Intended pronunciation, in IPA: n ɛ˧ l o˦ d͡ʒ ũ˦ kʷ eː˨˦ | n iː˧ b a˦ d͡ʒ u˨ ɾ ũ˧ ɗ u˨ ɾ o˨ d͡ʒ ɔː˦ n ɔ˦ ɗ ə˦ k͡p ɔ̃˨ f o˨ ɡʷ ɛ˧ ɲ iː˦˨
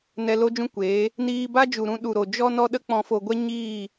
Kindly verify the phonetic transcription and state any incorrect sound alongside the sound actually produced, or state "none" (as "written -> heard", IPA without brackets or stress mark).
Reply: ɔː˦ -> ɔ˦